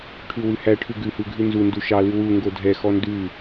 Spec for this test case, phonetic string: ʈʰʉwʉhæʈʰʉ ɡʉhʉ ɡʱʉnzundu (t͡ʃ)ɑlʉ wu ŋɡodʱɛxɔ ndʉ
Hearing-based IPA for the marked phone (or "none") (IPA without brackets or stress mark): ʃ